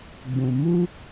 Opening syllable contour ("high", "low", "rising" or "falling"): low